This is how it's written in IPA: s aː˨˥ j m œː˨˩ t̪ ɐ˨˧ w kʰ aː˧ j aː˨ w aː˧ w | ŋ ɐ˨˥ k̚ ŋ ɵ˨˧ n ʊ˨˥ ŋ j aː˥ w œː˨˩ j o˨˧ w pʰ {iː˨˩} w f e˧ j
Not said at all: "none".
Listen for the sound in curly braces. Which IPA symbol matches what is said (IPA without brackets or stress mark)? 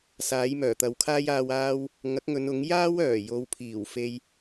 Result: iː˨˩